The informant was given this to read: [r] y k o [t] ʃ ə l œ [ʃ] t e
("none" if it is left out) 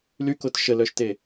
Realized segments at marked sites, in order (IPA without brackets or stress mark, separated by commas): l, t, ʃ